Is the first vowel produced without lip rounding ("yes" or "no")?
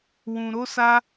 no